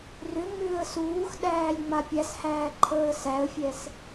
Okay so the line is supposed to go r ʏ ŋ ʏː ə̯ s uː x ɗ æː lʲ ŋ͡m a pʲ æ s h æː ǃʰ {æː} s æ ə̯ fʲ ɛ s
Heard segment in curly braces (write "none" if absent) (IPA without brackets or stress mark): əː